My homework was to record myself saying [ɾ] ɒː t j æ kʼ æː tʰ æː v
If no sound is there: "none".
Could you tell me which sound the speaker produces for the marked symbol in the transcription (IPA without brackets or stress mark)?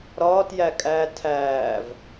ɾ